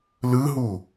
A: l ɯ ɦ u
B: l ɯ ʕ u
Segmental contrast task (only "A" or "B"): A